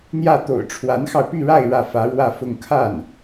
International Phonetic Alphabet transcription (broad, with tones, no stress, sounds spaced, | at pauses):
n̪ j ä˥˩ t̪ o̰˨˩ ʊ̯ ʈ͡ʂʰ w a˧˥ n x ɑ˧ ʊ̯ p y˥˧ ɻ a˥˧ ɪ̯ ɻ ä˥˩ f ä˧˥ ɻ w ä˥˧ f ʊ˥˧ ŋ kʰ a˥˩ n